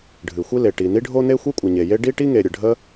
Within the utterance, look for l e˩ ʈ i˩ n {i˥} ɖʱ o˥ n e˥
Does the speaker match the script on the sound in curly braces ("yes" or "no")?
yes